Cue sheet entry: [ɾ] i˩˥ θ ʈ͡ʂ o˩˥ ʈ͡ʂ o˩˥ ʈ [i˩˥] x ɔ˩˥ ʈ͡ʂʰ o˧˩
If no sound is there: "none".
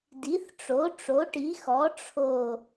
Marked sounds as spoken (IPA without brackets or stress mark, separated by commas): d, i˩˥